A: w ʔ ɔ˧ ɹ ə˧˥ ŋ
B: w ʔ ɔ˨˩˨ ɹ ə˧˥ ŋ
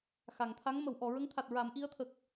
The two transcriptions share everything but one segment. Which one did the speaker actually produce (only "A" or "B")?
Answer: B